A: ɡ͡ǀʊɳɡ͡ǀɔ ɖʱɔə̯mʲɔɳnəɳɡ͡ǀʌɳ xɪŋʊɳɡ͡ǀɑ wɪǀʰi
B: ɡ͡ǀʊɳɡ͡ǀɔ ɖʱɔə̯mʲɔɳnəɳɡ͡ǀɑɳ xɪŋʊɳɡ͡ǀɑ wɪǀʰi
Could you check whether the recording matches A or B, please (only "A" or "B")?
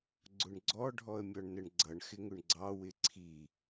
A